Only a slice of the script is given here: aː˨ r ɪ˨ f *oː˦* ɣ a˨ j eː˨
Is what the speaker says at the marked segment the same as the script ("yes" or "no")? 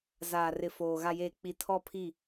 no